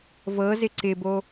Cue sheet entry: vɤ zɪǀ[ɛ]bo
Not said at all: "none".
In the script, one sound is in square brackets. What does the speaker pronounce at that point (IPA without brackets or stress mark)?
ɪ